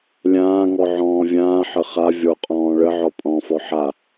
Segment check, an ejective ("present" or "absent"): present